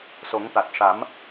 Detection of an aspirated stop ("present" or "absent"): absent